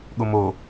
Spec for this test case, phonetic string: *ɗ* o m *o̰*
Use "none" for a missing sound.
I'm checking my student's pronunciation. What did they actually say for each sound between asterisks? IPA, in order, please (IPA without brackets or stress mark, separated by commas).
ɠ, o